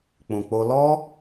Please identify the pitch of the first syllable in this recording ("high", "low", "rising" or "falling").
low